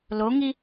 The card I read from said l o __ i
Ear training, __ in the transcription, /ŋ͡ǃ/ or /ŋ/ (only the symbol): ŋ